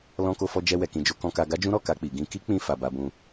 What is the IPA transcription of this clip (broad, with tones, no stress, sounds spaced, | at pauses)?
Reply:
l ɔ̃˧ k o˧ f ɔ˧ d͡ʒ ɛ˧ w ɛ˨ k ĩ˨ d͡ʒ o˧ k ɔ̃˧ k a˧ ɡ a˦ d͡ʒ ũ˦ ɾ ɔ˦˨ k a˧ k͡p i˨ ɡ ĩ˧ k i˦ k͡p ĩ˧ f a˨ b a˧ b ũ˧